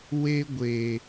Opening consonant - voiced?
yes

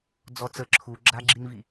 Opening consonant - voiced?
yes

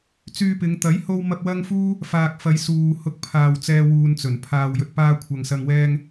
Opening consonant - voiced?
no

